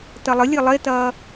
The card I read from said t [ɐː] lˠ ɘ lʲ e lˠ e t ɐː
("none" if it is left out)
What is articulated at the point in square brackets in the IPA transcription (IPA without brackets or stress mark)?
ɐ